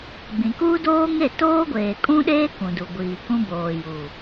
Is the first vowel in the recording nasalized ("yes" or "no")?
yes